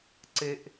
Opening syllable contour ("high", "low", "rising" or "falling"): high